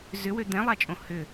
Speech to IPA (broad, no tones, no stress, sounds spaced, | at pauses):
z ʏ w ø d̪ ɛ̃ lˠ a t͡ʃʼ õ h ʏ